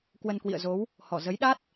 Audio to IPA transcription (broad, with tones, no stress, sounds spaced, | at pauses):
k w ə˧ n k w ḭ˧˨ ə̯ z o˨˦ w | h ɔ˧˩ z ə˨˦ j ɗ a˦˥ t̚